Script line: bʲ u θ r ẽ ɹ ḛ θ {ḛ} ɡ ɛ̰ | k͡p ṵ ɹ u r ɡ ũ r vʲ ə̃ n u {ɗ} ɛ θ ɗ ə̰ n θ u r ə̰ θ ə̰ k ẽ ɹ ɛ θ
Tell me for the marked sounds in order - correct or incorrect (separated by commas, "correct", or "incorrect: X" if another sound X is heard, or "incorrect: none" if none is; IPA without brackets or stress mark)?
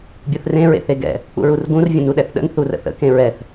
incorrect: e, correct